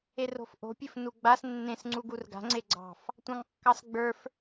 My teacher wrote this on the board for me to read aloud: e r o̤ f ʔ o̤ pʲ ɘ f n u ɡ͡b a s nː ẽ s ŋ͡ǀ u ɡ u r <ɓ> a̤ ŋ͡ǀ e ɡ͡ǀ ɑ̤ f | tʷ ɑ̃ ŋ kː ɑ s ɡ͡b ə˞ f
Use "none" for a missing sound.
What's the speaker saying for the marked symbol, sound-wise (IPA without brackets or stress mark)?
ɡ